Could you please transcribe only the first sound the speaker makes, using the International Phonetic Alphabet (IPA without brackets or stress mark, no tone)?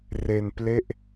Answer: r